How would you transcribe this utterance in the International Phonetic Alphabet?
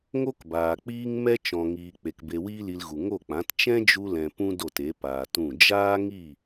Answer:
ŋo˦kbaː˨k͡piː˦ŋ mɛ˦ t͡ʃɔ̃˨ŋiː˨ k͡pe˨k be˧wiː˦li˧lɣu˨ ŋo˦˨k͡pã˨˦t t͡ʃɛ̃˦d͡ʒu˧lɛ̃˨ pũ˦do˦˨t e˨˦paː˨tũ˦˨ d͡ʒaː˦ŋi˦˨

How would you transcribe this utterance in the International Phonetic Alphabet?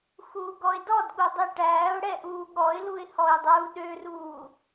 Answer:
xuːɡɔɪ̯dɔdɠu dˤiʈæːʊ̯ɽɛ ʔuːɠɔɪ̯luɪ̯ hɔɪ̯dˤuːɗøruː

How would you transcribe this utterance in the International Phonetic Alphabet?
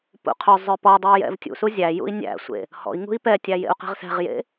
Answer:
pṵqʰœzˤœ pɔdˤuy̯ jɛ̰vtʲṵsu zʲæ jṵi̯nʲæ̰sʷḛ | hɔ̰i̯ ŋṳi̯pɛtʲæ jḛu̯qɛ̤ʁsɛ̤ʁjḛ

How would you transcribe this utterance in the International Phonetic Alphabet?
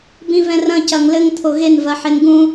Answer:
bĩvɛ̃rɐ̃ cɐŋlɘŋ t̪ʰoɣen vɐħenɡũ

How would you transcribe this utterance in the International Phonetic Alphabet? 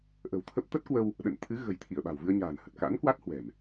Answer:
ʔə̤˨˩wt̪ʰə˦˥p̚ t̪ə˦˥t̚kwə˧w | ɗə̰˧˨n t̪ʰɨ˨˦ ɣə̤˨˩jt̪ʰi˧˩ə̯ ɓa̤˨˩wvɨ˧ə̯ɲa̤ː˨˩nhə˨˩t̚ ka̰˧˥nkwa˦˥t̚hwɛ̤˨˩m

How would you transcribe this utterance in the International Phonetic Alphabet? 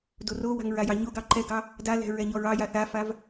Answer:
dorowa̤ŋ ɹajɑɲoɡɑ ǃɛɡɑ | dalɛ̤ ɹɛɲɔɹɑja θafav

